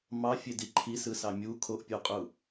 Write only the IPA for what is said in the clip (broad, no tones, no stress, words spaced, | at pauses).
mɑfʲedi ǃʰisɯsɑ mʲu kʰoʔpʲoqʼu